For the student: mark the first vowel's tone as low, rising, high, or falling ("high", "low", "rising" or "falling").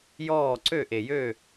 falling